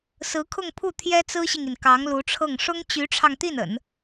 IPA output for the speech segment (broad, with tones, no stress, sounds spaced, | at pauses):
s ɹ̩˧˥ kʰ ʊ˥˧ ŋ pʰ u˥˩ t̪ʰ j ɛ˥ t͡s ɹ̩˥ ɕ i˨ ŋ i˩ n k ɑ˧˥ ŋ l u˧˥ ʈ͡ʂʰ ɤ˥˩ ŋ ʂ ʊ˥ ŋ t͡ɕ y˧˥ ʈ͡ʂʰ ɑ˧ ŋ t̪ i˥˩ n ə̰˨˩˦ n